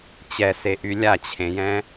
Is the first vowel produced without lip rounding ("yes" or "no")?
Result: yes